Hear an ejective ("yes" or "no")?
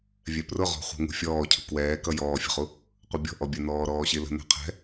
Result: no